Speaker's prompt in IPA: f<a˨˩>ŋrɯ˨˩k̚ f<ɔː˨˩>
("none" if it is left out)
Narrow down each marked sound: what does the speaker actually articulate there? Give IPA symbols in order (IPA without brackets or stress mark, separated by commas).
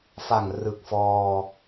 a˨˩, ɔː˧